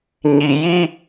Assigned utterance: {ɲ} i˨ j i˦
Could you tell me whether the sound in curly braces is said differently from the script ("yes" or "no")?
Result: no